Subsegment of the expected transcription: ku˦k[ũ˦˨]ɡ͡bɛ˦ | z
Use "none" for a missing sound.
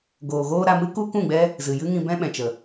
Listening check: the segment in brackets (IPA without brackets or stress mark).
ũ˦˨